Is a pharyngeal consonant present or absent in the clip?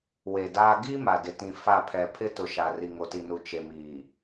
absent